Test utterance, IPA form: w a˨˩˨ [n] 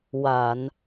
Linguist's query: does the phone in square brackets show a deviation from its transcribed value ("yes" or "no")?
no